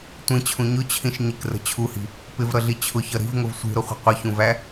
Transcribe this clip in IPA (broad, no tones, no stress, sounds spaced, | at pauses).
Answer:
tʷ ĩ t͡ɕʰ ũ ɲ ʊ t͡ɕʰ ĩ ʃ ɲ ɪ k r ə̤ t͡ɕʰ u h i̤ | p ɪ v ɾ ʌ ɮ i t͡ɕʰ ʊ ç ʌ ɾ i̤ v ŋ ʊ v sʷ i̤ ɾ ʊ χʷ ə̤ qʷ ʌ ç ũ v æ